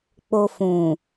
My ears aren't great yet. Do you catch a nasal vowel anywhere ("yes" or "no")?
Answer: yes